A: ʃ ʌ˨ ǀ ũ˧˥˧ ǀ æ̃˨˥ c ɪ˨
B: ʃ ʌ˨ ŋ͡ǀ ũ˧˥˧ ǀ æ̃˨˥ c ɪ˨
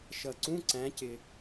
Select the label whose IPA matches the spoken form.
A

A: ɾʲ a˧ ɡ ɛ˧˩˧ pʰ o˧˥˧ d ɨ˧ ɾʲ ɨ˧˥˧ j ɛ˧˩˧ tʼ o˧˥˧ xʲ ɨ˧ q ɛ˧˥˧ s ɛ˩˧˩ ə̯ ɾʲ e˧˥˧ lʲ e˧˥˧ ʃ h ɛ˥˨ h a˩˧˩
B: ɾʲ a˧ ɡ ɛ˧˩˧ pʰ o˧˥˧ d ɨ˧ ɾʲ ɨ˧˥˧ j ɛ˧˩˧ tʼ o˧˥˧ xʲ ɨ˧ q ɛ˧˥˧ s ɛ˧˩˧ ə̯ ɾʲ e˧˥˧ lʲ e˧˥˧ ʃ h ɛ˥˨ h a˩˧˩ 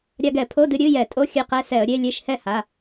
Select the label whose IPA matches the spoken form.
B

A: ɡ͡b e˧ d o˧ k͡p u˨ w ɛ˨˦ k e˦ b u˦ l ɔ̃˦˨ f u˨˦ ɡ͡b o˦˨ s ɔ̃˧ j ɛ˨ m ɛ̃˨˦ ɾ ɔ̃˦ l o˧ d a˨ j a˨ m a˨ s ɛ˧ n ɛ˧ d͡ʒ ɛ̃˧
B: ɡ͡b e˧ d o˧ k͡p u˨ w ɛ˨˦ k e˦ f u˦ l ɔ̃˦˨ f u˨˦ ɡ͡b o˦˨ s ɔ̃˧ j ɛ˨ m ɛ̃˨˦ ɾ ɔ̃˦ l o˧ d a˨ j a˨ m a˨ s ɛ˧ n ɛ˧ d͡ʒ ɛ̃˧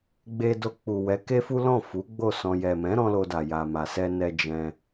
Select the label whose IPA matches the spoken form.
B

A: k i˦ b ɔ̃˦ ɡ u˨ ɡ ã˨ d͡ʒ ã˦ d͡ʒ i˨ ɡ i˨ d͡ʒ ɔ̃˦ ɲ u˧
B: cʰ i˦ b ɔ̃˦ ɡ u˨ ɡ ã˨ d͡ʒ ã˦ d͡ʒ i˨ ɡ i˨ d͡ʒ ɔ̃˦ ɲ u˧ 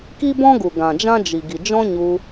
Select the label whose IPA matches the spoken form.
A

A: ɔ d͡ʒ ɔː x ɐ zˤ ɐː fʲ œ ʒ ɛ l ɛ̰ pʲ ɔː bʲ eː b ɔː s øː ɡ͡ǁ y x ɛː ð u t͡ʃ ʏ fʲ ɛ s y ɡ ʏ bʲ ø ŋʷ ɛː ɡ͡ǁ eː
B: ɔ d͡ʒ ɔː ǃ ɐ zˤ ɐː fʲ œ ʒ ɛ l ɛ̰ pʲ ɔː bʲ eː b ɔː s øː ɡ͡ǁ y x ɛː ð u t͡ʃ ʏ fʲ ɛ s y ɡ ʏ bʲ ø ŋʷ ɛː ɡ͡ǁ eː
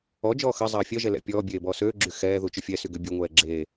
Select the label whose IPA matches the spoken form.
A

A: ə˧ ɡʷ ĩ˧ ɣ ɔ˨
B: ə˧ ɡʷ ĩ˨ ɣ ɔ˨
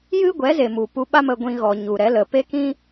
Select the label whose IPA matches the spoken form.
A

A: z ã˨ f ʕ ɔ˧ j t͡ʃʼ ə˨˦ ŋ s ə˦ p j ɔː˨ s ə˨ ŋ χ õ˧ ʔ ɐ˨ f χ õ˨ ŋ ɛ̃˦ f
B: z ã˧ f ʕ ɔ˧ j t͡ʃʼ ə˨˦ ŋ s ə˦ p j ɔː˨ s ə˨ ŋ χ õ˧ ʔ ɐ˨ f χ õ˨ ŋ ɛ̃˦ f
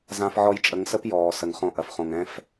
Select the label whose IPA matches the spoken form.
B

